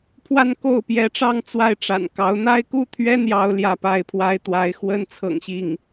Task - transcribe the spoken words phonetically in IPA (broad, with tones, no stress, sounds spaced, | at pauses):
pʰ w a˥˧ n k o˥˩ ʊ̯ p j ɛ˧˥ ʈ͡ʂ ɑ˥˧ ŋ t͡s w a˥˩ ɪ̯ ʈ͡ʂ a̰˨˩ n k ɑ˧˥ ʊ̯ n̪ a˥ ɪ̯ k u˥˩ t̪ʰ ɥ ɛ˥ n̪ j ɑ˥ ʊ̯ l j ä˥˧ p a˥˩ ɪ̯ pʰ w a˥ ɪ̯ t̪ w a˧˥ ɪ̯ x w ə˥ n t͡sʰ ɤ̰˨˩ ŋ ɕ i˥˩ ŋ